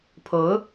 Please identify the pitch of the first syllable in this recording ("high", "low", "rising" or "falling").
rising